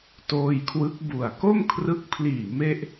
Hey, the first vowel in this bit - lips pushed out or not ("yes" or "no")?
yes